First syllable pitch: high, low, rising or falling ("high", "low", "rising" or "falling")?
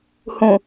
low